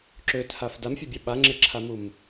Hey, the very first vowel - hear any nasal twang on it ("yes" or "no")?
no